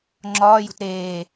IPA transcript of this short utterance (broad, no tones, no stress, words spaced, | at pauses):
ŋ͡ǁɒːjṳt ɾeː